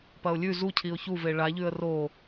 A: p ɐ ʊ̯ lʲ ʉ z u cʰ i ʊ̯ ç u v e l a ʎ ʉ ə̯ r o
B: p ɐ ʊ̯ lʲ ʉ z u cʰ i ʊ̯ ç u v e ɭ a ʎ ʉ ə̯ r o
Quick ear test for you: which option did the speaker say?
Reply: B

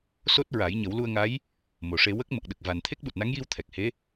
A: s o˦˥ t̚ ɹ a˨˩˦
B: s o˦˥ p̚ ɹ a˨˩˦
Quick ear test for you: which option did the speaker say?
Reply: A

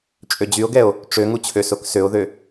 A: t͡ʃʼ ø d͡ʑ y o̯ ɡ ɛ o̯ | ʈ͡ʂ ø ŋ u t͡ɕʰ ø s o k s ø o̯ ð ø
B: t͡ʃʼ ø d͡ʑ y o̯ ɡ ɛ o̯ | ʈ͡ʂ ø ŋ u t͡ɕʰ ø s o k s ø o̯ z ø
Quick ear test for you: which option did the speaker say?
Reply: A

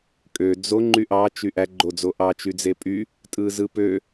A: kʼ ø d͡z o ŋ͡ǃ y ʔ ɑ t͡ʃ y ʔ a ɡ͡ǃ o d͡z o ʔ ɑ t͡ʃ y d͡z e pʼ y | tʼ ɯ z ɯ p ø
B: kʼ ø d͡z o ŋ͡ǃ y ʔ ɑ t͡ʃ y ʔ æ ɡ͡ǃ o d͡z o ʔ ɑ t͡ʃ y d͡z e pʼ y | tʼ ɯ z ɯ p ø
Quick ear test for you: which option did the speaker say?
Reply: B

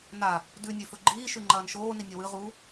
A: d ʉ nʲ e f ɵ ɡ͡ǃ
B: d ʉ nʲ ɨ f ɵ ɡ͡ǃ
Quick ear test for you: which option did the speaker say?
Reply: A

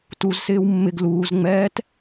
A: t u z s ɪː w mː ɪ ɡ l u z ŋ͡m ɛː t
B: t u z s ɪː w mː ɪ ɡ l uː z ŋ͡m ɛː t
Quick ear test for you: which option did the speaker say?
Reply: B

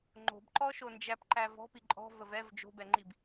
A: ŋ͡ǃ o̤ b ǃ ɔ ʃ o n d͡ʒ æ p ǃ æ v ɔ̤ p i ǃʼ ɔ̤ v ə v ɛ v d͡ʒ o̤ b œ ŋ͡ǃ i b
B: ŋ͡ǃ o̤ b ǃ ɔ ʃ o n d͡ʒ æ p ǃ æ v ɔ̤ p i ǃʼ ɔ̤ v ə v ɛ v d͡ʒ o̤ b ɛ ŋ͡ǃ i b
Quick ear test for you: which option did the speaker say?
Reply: B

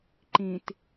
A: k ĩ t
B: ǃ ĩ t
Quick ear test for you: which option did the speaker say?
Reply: B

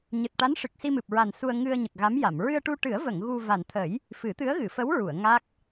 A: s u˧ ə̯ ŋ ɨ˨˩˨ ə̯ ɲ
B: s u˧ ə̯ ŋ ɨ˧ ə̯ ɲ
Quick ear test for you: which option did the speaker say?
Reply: B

